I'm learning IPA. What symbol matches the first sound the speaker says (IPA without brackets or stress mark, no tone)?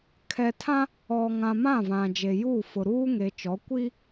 kʰ